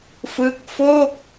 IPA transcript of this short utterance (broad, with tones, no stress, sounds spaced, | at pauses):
f ɯ˦˥ k̚ f o˥˩ k̚